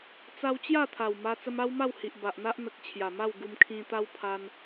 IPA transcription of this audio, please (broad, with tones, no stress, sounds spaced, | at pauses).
t͡s a˧ w t͡ɕ j a˥˧ t̪ʰ a˨˩ w m a˧ t͡s ə˧ m a˦ w m a˥˧ w h i˨ ʔ b a˨ ʔ n̪ a˦ ʔ n̪ ə˨ k̚ t͡ɕʰ j a˨˩ m a˥˧ w ɡ u˧ m kʰ ĩ˧ t̪ a˦ w pʰ a˧ n